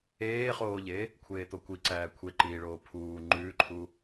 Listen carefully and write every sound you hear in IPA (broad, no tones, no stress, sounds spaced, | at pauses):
eː χ oː ʎ e | kʷʰ eː t̪ o kʷ i ǀ æː kʷʰ e ǃ iː ɭ oː pʰ uː ŋ͡ǃ ʉː ǃʰ u